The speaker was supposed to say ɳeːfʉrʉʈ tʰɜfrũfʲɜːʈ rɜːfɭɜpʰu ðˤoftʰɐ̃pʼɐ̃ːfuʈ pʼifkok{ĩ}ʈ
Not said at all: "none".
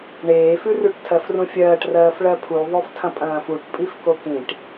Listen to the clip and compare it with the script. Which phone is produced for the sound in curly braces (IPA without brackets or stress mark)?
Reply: ĩ